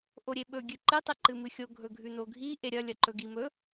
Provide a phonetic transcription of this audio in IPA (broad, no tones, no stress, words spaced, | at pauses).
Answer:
ʔoɾʲeɓɵ ɡʲɨǃɨ tˤɨǃɨmɨxʲo ɡʱɵɡʱʉnoɡʱi ʔeɾʲɐ lʲɐǃɵɡimɵ